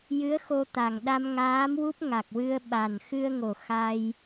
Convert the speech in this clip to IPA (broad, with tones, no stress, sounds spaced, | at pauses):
j ɨ˧˥ ə̯ x o˧ t̪ a˨˩ ŋ ɗ a˧ m ŋ aː˧˥ m w u˦˥ p̚ ŋ a˨˩ k̚ w ɨ˧ ə̯ ɓ a˨˩ n x ɨ˧ ə̯ ŋ o˨˩ x a˧ j